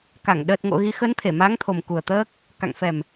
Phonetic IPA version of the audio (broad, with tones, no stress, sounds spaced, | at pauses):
k a˧˩ ŋ ɗ əː˨˩ t̚ ŋ o̰˧˨ ɣ i˨˦ x ə˨˦ n t̪ʰ e˧˩ m a˨˦ ŋ t̪ʰ o˨˩ m k u˨˩ ə̯ t̪ əː˦˥ k̚ | k a̰˧˨ ŋ f ɛ˨˩ m